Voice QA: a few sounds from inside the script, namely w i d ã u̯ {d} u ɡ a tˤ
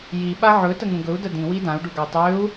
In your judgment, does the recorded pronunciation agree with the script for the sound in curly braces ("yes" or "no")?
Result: no